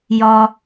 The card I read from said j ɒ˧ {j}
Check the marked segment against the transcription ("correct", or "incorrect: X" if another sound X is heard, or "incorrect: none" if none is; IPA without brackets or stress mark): incorrect: none